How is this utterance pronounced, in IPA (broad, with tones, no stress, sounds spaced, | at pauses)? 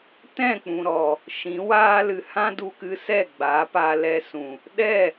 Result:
t ɛ̃˦˨ k͡p ũ˨ ɾ ɔ˨ | ʃ ĩ˨˦ w aː˧ l ɨ˨ h ã˦ d u˧ k ɨ˧ s ɛ˦˨ ɡ͡b a˨˦ p a˧ l ɛ˧ s ũ˨ | ɗ ɛ˦˨